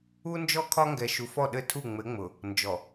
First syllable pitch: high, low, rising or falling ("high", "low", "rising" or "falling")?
high